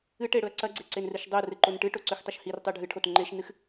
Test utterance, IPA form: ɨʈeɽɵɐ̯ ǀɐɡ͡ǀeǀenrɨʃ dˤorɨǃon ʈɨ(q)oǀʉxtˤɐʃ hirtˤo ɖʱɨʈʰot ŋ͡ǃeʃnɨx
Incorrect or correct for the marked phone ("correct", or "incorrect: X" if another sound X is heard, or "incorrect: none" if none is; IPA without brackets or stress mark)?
incorrect: ʈ